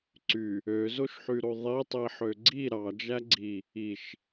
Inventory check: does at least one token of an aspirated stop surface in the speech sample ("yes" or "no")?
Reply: no